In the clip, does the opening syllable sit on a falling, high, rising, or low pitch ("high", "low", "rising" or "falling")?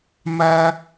high